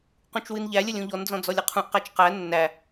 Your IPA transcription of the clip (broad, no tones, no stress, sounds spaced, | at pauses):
q ũ t͡ʃ w ɨ n ʎ æ lʲ ə lʲ ũ ʎ ɔ n d͡z ɔ̃ d͡z ɔ lʲ ə qʰ ũ ʔ q æ t͡ʃ q æ nː æ